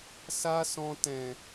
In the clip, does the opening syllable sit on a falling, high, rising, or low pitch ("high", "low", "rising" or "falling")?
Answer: high